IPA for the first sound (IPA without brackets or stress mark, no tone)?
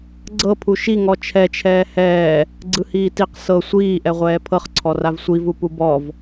ɡ͡ǀ